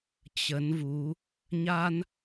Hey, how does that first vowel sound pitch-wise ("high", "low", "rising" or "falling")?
rising